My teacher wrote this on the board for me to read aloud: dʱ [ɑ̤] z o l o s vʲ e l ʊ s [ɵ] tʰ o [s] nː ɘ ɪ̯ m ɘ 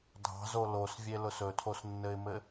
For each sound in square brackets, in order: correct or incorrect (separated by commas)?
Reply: correct, correct, correct